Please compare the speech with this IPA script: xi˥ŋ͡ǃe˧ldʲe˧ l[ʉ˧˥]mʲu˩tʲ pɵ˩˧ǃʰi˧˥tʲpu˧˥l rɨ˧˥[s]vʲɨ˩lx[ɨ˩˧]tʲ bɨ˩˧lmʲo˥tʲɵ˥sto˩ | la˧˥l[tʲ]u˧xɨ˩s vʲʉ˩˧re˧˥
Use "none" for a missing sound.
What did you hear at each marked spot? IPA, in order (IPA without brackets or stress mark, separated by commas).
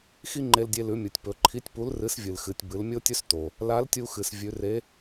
ʉ˩˧, s, ɨ˩˧, tʲ